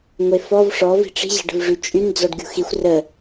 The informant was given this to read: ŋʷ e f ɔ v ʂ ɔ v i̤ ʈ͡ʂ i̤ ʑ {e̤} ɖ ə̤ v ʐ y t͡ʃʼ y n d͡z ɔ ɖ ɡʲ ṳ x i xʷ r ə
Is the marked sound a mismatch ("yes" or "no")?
no